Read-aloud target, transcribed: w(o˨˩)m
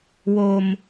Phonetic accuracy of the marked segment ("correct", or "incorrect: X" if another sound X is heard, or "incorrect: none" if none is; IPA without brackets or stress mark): incorrect: o˧